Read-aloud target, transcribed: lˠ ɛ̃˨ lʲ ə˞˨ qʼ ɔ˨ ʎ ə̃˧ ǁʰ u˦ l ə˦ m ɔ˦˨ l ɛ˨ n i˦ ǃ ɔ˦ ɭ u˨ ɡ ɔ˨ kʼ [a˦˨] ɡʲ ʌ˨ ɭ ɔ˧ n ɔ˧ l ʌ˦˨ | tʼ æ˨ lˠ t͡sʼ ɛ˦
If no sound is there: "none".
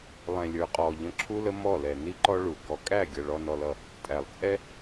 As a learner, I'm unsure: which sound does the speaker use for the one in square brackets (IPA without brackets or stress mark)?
æ˦˨